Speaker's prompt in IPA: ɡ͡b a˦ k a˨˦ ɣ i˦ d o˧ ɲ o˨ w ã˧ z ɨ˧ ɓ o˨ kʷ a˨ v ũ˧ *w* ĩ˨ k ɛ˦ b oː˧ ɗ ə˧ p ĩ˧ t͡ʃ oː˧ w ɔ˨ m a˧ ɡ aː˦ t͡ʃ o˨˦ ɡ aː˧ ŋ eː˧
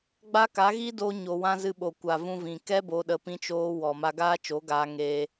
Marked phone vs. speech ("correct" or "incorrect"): incorrect